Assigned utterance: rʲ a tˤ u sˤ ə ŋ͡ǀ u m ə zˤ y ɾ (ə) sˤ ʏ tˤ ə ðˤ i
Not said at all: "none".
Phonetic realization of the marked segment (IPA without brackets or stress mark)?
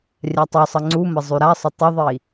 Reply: a